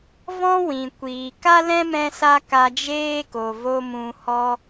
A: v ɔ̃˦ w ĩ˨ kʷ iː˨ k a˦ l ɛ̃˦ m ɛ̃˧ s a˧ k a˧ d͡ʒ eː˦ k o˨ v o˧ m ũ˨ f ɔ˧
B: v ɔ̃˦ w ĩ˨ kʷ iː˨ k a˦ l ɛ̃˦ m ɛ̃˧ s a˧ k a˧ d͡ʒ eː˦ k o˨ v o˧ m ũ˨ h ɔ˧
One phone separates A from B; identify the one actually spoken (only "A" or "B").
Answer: B